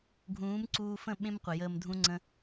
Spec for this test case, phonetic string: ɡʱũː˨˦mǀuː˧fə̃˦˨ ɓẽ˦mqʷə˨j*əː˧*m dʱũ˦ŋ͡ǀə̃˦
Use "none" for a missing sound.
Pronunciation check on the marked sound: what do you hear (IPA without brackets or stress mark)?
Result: əː˧